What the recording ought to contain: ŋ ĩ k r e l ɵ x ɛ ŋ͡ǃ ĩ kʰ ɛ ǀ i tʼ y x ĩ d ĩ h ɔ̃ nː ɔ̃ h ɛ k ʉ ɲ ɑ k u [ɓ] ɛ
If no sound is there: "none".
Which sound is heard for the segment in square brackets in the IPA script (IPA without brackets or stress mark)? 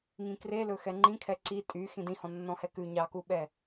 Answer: ɓ